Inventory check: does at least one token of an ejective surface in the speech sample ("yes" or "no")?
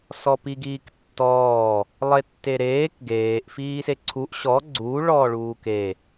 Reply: no